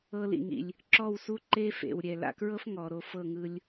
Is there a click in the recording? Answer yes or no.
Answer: yes